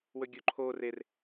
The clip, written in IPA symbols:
w ɵ ɡʲ o ǃʰ o r e r

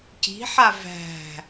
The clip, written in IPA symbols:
c i̤ ħ a v æ̤

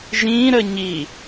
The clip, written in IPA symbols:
ʒ ĩ ɾ ə ɲ i

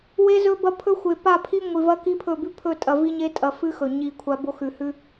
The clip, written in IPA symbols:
w e˦ z ɵ˦ b ɐ˦ pʰ ɵ˦ xʷ e˨ p a˦˨ pʰ i˦ ŋʷ i˨ v ɐ˦ k i˦ pʰ ɵ˦˨ b ʉ˦ pʰ ɵ˦˨ tʼ ɐ˨ v i˦ ɲ e˦ tʼ ɐ˨ f ɨ˦ x ɵ˨ ɲ i˦˨ kʷʰ a˦ b o˦ x ʉ˨ h ʉ˦

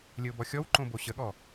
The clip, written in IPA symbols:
lʲ ə ʊ̯ b ɔ xʲ ɔ w ǃ õ b o ɕ ə ɠ ɔ

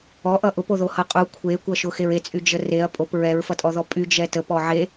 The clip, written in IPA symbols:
ɔ ʔ ʌ ʔ ʊ p o ð o h ʌ qʼ u kʷʰ e kʷ ʌ ʃ ʊ x e ɹ e t͡sʼ y d͡ʒ ə r e ɐ̯ pʼ o p ɹ ɛ ɹ f ʌ tʼ ɔ ð ɔ pʼ y d͡ʒ ɛ t ə p ɔ ʕ e

